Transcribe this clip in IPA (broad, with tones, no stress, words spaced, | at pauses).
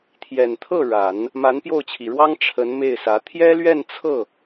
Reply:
t̪ʰjɛ˨˩nt̪ʰɤ˥˩ ɻa˨˩˦n | ma˧˥npjo˥˩ʊ̯t͡ɕʰi˨˩ɻwɑ˥ŋ ʈ͡ʂʰə˧˥nme˥˩ɪ̯sä˧˥ t̪ʰjɛ˥lɥɛ˥˧n t͡sʰɤ˥˩